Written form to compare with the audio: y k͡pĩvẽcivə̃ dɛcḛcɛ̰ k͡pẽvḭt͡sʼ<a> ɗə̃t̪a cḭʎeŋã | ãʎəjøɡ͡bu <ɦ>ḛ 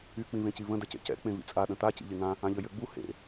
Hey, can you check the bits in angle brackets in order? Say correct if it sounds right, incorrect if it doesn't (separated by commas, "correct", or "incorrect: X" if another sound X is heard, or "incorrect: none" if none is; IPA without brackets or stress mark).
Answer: correct, incorrect: h